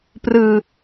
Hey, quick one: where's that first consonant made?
lips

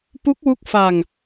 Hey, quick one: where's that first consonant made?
lips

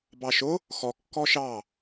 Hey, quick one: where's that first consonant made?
lips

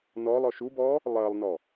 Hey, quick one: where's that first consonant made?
tongue tip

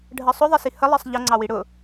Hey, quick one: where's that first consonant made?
retroflex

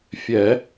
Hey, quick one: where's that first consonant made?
lips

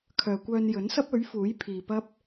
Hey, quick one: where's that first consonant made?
velum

